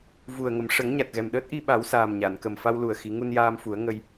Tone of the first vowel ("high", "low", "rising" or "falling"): low